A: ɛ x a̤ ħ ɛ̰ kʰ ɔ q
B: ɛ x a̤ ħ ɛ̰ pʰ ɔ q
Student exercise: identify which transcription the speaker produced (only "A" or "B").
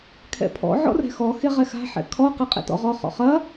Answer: A